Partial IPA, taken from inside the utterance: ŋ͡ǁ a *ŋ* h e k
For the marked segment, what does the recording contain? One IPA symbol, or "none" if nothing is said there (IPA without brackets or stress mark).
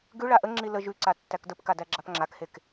k